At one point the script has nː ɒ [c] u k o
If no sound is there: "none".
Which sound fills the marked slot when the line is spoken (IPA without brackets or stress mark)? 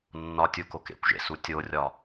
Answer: tʲ